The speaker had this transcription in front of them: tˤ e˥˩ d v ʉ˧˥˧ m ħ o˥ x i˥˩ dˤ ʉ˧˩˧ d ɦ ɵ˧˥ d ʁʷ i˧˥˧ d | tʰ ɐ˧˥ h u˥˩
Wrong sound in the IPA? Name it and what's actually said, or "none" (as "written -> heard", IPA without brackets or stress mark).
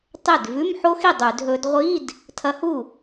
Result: none